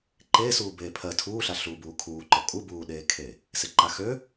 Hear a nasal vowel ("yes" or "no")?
no